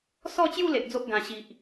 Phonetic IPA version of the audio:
s ɔ˥˧ t͡ɕ j u˥˧ l e˨ ʔ d͡z o˦ ʔ ɡ ã˨˩ ɕ i˨ ʔ

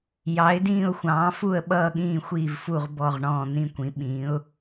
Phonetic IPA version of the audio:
j ɑ˩˥ ɪ̯ d ĩː˥˨ ʊ̯ xʷ ɑ̃ː˩˥ f u˥˨ ə̯ ɓ ʌː˥˨ ɠ ĩː˥˨ xʷ iː˥˨ v f u˥˨ ʁ b ɔ˥˨ ʁ ɳ ɔ̃ː˥˨ n̪ ĩ˥˨ kʷ ĩ˩˥ ɓ ĩː˩˥ ʊ̯

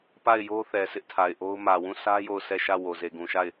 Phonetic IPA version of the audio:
p a˦˨ ɪ̯ j o˦ θ ɛ˨ sʰ ɪ˦ ʔ tʰ a˨ ɪ̯ ʔ o˦ ʊ̯ m ä˨ w ũ˦˨ sʰ ä˦ j o˦˨ ʊ̯ sʰ ɛ˦˨ ʃ ä˦˨ w o˨ z e˨ ɡ ũ˨ ʃ a˦˨ ɪ̯

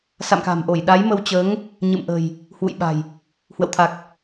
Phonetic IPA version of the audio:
s a̰˧˨ m k a̤˨˩ m ʔ o˧˩ j ɗ a˨˦ j m ə˧ w t͡ɕ əː˨˦ ŋ | ɲ ɨ̰˧˨ m ʔ ə̤˨˩ j | h w ṵ˧˨ j ɓ a̤˨˩ j | h w ə̰˧˨ w t̪ʰ a˨˩ k̚

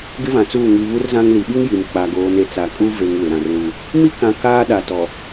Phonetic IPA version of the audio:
ɡ ɪ˦ v ã˨ t͡s uː˦˨ ŋ i˨ β u˦ r z ã˦ ŋ l i˨ ɓ i˦ ŋ j i˨ m k͡p a˨ ɡ oː˨ n e˨ t͡s a˨ kʼ u˦ v e˨ ŋ w ɪ˨ ɾ ã˨ r l u˦ | m i˦ k ã˨ k aː˦ ɗ a˨ t ɔ˨

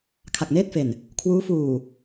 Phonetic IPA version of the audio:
kʰ a˨˩ k̚ n eː˥˩ t̚ f e˨˩ n | kʰ w uː˦˥ f uː˨˩

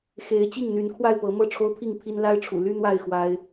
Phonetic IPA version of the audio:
x e˨˦ ɪ̯ t͡ɕ i˥˨ ŋ n̪ y˨˦ n kʰ w a˥˨ ɪ̯ p ɤ˨˦ m ɤ˥˨ ʈ͡ʂʰ o˦ ʊ̯ pʰ i˥˨ ŋ pʰ i˦ n l a˦ ɪ̯ ʈ͡ʂʰ ṵ˨˩ l y˦ n̪ w a˥˨ ɪ̯ x w a˦ ɪ̯

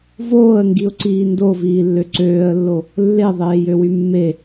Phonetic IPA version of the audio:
v oː ə̯ ŋ ɡ i ʊ̯ ǀ iː n d o v iː lː ø ǀ øː ə̯ lː o | lː e ðˤ eː j ø w y mː e

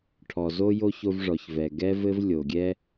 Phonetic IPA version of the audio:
ʈʰ ɔ˩ z o˥ j o˥ ç o˦ v ʐ ɔ˩ ç v ɛ˩ ɡ ɛ˥ v ɘ˥ v lʲ o˩ ɡʲ ɛ˥

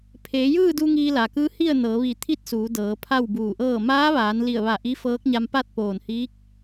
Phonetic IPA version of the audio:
pʰ eː˩˧ j ɯː˥˨ d u˧ ŋ iː˧ l a˩ k ɯː˧˥ h i˥˨ ə̯ n ɤː˩˧ ʋ i˧˩ t̪ʰ i˥˨ t̚ s uː˩˧ d ɤː˩˧ pʰ a˥˨ w b uː˧˩ ʔ ɤː˥˨ m aː˧˥ ʋ aː˩˧ n l i˧˩ ə̯ ʋ a˧˩ ʔ i˧˥ f ɤː˧˥ k̚ ɲ a˧ m p a˥˨ t̚ p oː˧˩ n h iː˧˥ k̚

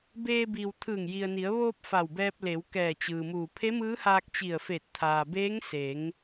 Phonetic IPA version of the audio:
b eː˧ b iː˩ w t̪ʰ ɯː˧˩ ŋ j i˩ ə̯ n i˩˧ ə̯ ʋ oː˧ p̚ f a˧˩ w b ɛː˧ p̚ l e˩˧ w k ɛː˧˩ t͡ɕ ɯː˩ m uː˧˩ pʰ e˧˥ m ɯː˧˥ h aː˧ k̚ t͡ɕ i˧˩ ə̯ f e˧˩ t̚ t̪ʰ aː˩ b eː˧˥ ŋ s e˩˧ ŋ

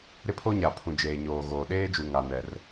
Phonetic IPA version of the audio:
ɾ ɪ˦ pʰ o˦ ɲ a˨ pʰ ũ˨ d͡ʒ eː˨ ɲ oː˨ ɣ oː˨ ɗ eː˦ d͡ʒ u˨ ŋ a˨ n ɛ˨ r

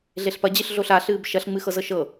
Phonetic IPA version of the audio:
ɮ e ɬ p ɐ d͡ʑ ɨ ɬ ɮ o ɬ a ɬ ɨː b ʃ ɐ ɬ ŋ͡m ɨ x ɤ z ɤ ʃ ɤ

